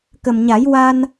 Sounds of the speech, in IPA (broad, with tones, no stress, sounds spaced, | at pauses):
k ə˨˩ m ɲ a˨˩˦ j w a˧ n